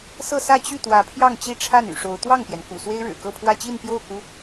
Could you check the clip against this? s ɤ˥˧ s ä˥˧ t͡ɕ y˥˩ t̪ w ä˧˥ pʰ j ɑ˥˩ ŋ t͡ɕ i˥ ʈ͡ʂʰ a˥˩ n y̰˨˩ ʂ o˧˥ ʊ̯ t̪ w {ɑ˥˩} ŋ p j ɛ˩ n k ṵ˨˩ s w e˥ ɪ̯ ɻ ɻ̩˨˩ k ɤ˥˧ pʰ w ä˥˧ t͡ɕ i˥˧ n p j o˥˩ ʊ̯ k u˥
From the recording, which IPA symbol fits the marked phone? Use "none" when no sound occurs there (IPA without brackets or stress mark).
ɑ˥˩